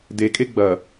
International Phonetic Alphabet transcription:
dekʼe ɡ͡bɐ

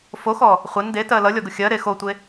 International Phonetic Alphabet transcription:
foxɔ | χʷɛn detɜ lʌlʲɔɡʊ xʲɜɾe xotʷe

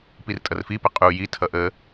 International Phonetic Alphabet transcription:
pirtʼʌrfipə qʼu jitʰʌ ʔə

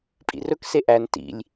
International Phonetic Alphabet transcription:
pʼḭrɵkse ʔæn tḭlʲ

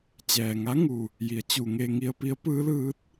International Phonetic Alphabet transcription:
t͡ɕɛː˩ŋa˧˥ŋu˩ | ji˩˧ə̯ t͡ɕu˩ŋe˧ŋi˧ə̯ pi˧˥ə̯pɯː˧˥lɯː˧˥t̚

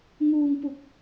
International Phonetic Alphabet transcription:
ŋuː˧ŋpu˨˩k̚

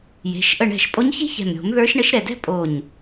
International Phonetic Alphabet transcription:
je̤˩˧˩ʃ ʔə˧˩ɳɛ̤˧˩ʃpʼo˧˥ɲçe̤˥ çɛ̤˧˩m ɾʲo̤˨˩˦m ðə˞˧˥ʃɳə˧˥ʃɾɛ˧˩dɛ̤˥ pʼo˧˩ɲ

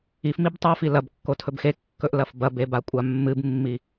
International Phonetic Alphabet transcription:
ifmib tˤofi lɐbkːo tʰɵbxekːɵʔ lɐfbɐbe bakʷʼamːɨbmːi

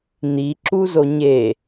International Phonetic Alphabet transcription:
n̪iǁuzo ɲe

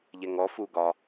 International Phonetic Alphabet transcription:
ʎɛŋɔ fuɡɒ

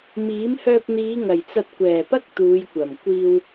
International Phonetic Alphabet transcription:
miː˨˥mhœː˧p̚n̪iː˨˧ ŋɐ˨˩jt͡sɐ˧t̚ kʷɛː˨˩pɐ˥k̚ t̪uː˨˧jkʷɐ˨˩m kʷiː˧w

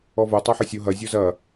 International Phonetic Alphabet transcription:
ɔvo tˤaħʌsʲo ɦɐ zʲozɐ

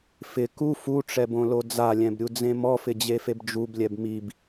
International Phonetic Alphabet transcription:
fɪ ku fuʈ͡ʂɛbõlo d͡zalʲɛ̃bɾʲud͡zẽ mɔfɪd͡ʑefeb d͡ʒublʲɛb mib

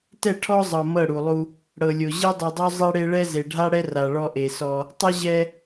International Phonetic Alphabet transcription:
tɛ˦˨ʈʰɔ˦zˤɤ˨ mɤ˦˨ɽu˨lˠu˦ | ɽɤ˨lʲo˨ ʑe˦dˤi˨dˤo˦ zˤe˦ɽe˦ɭɛ˦ ze˨ɖʱa˦ɽɛ˦ ra˨ɭɔ˦ʔe˨sɔ˦ | tˤɯ˦ʑɛ˦

